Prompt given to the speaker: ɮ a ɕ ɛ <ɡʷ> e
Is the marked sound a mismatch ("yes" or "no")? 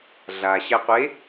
yes